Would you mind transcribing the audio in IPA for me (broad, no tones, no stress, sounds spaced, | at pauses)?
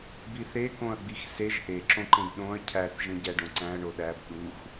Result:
b i θ e k õ ɐ̯ ɡ͡b i x s e ʒ ʔ e ǁ õ ǃ ẽ b ɗ õ ɐ̯ cʰ æ θ ʒ ẽ ɟ æ ɖ õ ǀ æ̃ ɐ̯ ɳ o ɗ æ b ɗ u x